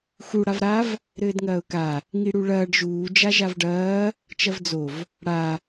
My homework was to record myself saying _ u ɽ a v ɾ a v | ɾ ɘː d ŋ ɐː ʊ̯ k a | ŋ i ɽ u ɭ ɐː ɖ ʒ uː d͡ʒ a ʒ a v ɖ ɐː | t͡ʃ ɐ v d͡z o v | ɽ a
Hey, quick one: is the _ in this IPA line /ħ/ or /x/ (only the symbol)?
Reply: x